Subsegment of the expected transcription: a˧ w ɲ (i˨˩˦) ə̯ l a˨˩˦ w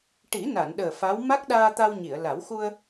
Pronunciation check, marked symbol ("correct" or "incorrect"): incorrect